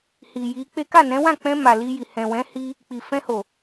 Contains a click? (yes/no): no